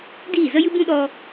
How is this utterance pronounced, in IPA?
d iː˦˨ z ə˦ j ɨ˦ b ũ˦ ɗ ɔ˦

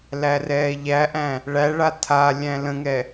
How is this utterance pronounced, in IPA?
l æ r ɛː ʎ æ ʔ æ̃ | ɭ æ ɭ a tʰ a lʲ æ̃ l ə̃ ŋ ɛ

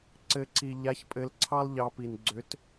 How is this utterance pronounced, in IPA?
ǀ ɘ˧˥ ǀ i˧ ʎ a˧˥ ç pʼ ɘ˧˥ l ǀʰ ɑ˥ lˠ ʎ ɑ˧˥ p i˧ n ɡ͡ǀ ʏ˧˥ t

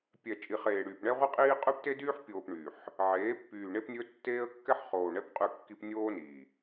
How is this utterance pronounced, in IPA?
pʲ ɛ˨ t͡ʃʼ i˨ χ eː˨ ɽ yː˨ p ɳ ɛ˦ ʁʷ i˦ qʼ iː˦ qʼ ʉ˦ p t e˦ d yː˦ ħ pʲ oː˨ p ɳ y˨ ħ | ʕ eː˨˦ pː yː˨ ɳ e˦ p nʲ ɵ˦ tː eː˦ ə̯ kː ɛ˦ ħ χ oː˨ ɳ ɛ˦ p qʼ ʉ˦˨ kː i˦ p nʲ oː˦ n iː˨

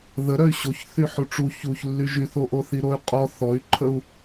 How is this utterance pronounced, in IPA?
ð ə ɾ œ y̯ ɕ o ç θ y ħ u ʈ͡ʂ u ç u ç lː y ʒ y θ o ʔ o θ i ɾ o y̯ qʼ ɔ θ ɔ y̯ ǃʰ ə u̯

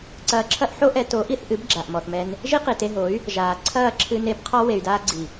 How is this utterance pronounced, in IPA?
ǀ ɐː˧ ǁʰ ɐ˦ ʔ ħ o˦ ʔ ɛ˧ t o˨˦ ʔ i˧ θ ʔ ɨ˨˦ b ɡ͡ǁ a˨ ʔ m ɔ˨ θ m ɛ˧ n | ʒ i˦ q i˨ t e˧ ɦ o˨˦ y̯ | ʒ aː˨ ǀʰ ɐː˦˨ ǁʰ ɨ˧ n e˧ b qʰ ɔ˧ w e˨ y̯ d aː˧ ɡ͡ǀ i˨

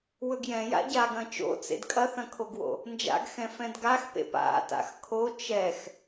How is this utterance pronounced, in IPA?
w ɵ ɡ j ɛ̃ j a̰ ɟ a ɡ ɐ̃ t͡ʃ o̰ t͡s ḛ d kʼ ɐ θ ɐ̃ kʰ o ɡ w o̰ | n d͡ʒ a̰ ɡ x ɛ̃ f ɛ̃ d ɡ a x p ḛ p a̰ t a̰ x kʰ o t͡ʃ ɛ x

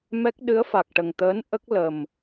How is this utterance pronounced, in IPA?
m ɛ˦˥ k̚ ɗ ɨ˧˥ ə̯ f a˨˩ k̚ ʈ ə˨˩ ŋ t̪ əː˧˥ n ʔ ə˦˥ k̚ l ə˨˩ m

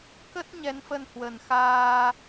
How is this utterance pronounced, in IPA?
k ə˦˥ t̚ ɲ ɛ˨˦ n f ə˧ n h w ə˨˩ n x aː˧

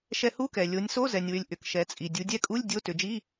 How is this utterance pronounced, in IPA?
ʃ ɛ˧ h u˧˥˧ k ɛ˩ lʲ o˩˧ nʲ s o˧˥˧ z ɛ˩ nʲ w ʏ˩˧ lʲ ʔ ʏ˩ k ʃ ɛ˩˧ t͡sʼ i˩ dʲ u˩˧ dʲ ɛ˧ kʼ u˧˥˧ lʲ dʲ o˧˥˧ t ʏ˩˧ d͡ʒ i˧˥˧

